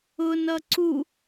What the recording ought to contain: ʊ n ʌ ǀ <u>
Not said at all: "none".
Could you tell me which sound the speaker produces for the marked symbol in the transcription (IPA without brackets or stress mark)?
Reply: u